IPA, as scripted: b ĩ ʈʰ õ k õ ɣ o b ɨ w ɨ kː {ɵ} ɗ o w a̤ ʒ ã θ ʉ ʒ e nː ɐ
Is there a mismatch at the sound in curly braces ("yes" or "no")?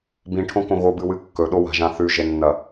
no